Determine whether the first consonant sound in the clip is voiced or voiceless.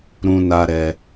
voiced